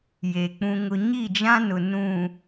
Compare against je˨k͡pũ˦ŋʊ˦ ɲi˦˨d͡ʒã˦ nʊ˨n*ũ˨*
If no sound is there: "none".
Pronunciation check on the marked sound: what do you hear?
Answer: ũ˨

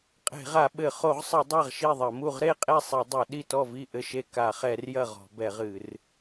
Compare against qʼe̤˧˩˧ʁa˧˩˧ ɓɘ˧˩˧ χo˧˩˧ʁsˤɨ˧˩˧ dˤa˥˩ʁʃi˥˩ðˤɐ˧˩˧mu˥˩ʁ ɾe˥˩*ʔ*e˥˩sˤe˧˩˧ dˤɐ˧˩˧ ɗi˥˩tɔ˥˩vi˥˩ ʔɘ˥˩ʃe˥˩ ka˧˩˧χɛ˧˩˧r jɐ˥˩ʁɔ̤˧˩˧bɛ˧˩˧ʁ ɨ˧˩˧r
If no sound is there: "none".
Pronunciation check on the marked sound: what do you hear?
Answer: qʼ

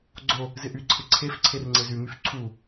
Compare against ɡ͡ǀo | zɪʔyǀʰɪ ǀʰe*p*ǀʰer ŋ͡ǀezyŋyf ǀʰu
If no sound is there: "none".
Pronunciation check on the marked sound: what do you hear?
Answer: f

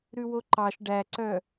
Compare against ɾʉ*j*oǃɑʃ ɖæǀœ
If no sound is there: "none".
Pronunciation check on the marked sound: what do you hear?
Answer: w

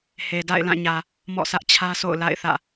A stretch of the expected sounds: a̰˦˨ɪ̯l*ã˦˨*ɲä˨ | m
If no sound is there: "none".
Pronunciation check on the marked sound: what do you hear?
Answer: ã˦˨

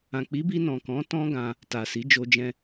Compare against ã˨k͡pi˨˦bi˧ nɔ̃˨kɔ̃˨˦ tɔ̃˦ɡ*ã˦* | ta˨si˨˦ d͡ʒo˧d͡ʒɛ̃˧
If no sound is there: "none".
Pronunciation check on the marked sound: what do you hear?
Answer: ã˧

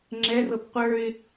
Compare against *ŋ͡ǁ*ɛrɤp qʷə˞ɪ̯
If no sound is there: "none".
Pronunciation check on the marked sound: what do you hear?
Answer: ŋ͡ǁ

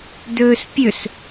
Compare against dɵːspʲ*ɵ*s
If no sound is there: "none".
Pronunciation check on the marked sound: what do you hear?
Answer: ɵ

